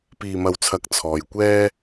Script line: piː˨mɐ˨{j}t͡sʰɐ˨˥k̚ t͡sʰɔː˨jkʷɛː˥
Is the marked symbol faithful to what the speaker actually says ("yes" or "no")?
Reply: no